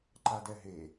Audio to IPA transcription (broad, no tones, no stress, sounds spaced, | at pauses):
ǃ a d ɛ ɦ e